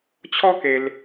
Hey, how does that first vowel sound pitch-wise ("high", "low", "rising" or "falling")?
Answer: high